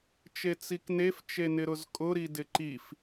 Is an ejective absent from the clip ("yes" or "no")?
no